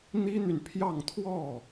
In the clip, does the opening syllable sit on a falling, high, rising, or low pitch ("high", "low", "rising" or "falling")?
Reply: high